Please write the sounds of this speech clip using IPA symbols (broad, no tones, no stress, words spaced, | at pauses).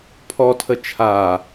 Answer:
pʰɔtʰə t͡ʃʰa